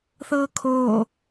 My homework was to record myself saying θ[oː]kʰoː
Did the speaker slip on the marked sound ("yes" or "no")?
yes